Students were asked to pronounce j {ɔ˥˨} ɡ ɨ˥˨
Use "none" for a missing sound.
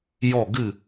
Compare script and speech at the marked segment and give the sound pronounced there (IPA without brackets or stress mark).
ɔ˥˨